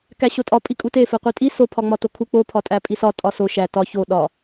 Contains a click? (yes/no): no